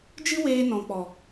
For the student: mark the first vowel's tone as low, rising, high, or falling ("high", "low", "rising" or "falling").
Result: high